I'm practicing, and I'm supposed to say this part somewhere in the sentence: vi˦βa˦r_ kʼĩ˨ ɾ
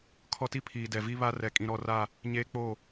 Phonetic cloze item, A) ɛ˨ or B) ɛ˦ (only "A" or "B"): A